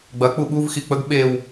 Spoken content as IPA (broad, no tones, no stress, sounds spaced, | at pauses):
ɡ͡b ɐ k͡p u ɓ u v x i k͡p ə ɡ ɓ e w